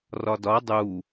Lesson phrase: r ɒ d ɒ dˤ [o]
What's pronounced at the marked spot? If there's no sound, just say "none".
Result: u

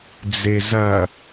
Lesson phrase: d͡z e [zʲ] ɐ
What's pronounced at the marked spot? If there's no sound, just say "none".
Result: z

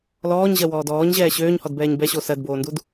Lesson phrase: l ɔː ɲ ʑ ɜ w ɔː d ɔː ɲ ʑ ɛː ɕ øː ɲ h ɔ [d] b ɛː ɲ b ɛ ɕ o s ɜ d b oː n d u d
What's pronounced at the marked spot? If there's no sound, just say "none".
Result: d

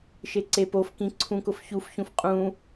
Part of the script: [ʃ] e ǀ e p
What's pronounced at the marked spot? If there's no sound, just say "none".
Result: ʃ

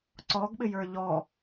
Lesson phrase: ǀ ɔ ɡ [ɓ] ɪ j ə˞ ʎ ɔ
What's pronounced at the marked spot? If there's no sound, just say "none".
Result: ɓ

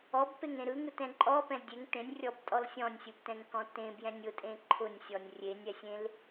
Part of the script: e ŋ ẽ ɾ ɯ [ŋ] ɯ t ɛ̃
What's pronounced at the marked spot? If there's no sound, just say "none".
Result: ŋ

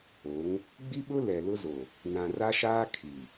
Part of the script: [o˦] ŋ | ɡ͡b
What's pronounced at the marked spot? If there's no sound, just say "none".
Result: o˨˦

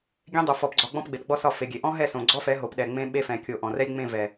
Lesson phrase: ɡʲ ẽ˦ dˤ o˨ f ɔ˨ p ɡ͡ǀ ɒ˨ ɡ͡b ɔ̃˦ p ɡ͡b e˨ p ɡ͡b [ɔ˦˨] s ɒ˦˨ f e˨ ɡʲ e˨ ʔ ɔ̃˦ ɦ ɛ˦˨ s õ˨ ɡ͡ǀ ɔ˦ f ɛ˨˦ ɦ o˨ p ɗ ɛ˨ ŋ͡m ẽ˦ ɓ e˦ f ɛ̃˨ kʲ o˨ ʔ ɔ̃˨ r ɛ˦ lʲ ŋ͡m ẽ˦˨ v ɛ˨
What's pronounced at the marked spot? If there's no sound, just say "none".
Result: ɔ˦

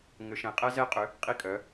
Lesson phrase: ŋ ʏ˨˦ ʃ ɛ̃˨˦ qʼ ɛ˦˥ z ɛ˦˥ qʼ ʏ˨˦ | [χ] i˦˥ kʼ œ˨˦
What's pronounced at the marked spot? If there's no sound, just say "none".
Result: qʼ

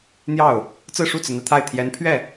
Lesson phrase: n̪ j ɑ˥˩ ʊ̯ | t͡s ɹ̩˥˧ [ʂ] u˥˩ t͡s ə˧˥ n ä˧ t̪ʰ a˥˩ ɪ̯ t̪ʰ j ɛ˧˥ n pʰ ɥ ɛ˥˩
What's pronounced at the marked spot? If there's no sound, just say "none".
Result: ʂ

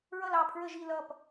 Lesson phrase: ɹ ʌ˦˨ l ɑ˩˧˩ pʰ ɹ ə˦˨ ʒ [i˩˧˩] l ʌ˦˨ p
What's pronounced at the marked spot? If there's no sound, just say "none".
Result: i˦˨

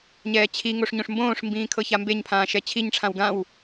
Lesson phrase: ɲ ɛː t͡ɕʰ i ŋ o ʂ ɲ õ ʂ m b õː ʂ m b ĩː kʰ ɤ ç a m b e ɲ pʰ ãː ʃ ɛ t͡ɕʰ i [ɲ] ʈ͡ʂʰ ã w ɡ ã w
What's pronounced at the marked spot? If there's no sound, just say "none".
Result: ɲ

